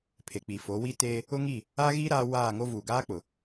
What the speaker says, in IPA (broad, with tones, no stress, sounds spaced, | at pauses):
pʰ e˨ k͡p i˨ f o˨˦ w i˦ t eː˦ | ʊ˦ ŋ i˦˨ | a˦ ɣ i˦ ɾ aː˦ w aː˦˨ ŋ o˦ v uː˨ ɡ aː˦ k͡p ʊ˨